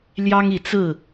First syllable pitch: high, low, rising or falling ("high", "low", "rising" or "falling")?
high